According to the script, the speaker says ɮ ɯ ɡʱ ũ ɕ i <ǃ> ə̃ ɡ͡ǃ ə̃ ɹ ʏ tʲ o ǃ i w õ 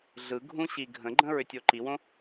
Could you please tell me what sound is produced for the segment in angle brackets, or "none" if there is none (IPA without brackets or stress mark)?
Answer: ɡʱ